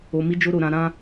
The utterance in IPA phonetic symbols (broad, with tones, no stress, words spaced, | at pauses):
o˧mi˦ d͡ʒo˧ɾo˨ ɾã˧ ɾã˦